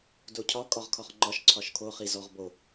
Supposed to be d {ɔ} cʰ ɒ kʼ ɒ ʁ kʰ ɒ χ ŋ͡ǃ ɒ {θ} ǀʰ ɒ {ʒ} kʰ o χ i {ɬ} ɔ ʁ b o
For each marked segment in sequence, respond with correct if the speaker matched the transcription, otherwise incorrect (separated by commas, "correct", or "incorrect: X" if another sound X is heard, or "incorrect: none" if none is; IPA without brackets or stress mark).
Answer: incorrect: o, incorrect: ʃ, incorrect: ʃ, incorrect: z